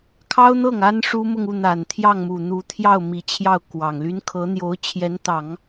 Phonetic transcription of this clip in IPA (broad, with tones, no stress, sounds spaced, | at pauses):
kʰ ɑ˥ ʊ̯ n̪ ɤ˥˩ ŋ a˥ n ʂ u˥ m ʊ˥˧ ŋ u˥˩ n̪ a˨˩ n t̪ʰ j ɑ˥˩ ŋ m u˨˩ n̪ u˧˥ t̪ʰ j ɑ˥˩ ʊ̯ m i˧˥ t͡ɕʰ j ɑ˥˩ ʊ̯ k w ɑ˨˩ ŋ l y˥ n kʰ ɤ˧˥ n̪ j o˧˥ ʊ̯ t͡ɕʰ j ɛ˧˥ n t̪ ɑ˨˩˦ ŋ